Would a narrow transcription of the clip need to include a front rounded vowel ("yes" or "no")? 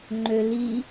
yes